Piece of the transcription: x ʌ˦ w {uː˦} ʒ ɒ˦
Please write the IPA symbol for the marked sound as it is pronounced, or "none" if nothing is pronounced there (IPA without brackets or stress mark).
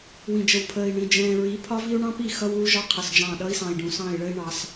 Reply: uː˦